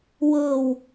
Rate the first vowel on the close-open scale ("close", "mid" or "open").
mid